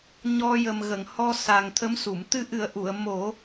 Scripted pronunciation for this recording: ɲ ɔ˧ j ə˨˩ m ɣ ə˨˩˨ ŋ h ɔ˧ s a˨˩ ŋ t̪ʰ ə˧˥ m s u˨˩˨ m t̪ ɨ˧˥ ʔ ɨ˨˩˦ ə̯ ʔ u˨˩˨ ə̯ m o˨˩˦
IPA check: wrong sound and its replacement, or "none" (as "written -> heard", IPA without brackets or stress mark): none